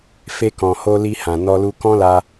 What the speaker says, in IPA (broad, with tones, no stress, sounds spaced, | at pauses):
f e˧ k ɔ̃˨ h o˧ l i˧ h ã˨ n ɔ˧ l u˧ k ɔ̃˦ l a˧